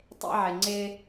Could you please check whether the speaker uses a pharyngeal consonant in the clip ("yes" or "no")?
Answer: yes